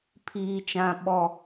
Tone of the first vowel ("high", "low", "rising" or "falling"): high